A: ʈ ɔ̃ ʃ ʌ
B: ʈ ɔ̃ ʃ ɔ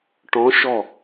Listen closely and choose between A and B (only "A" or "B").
B